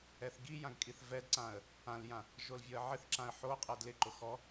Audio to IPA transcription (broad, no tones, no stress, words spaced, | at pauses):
ɛθɡijãɡ kʼiθvɛdǀãə̯ | ãljã | ʒolvʲɔə̯ʕɪθǁãə̯ ħoqʼɛd lɪǃʊ xɔ